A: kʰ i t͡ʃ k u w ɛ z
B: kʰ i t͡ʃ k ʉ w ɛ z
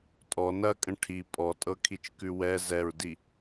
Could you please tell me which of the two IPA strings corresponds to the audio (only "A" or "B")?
B